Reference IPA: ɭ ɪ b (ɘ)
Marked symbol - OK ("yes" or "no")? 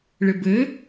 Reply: yes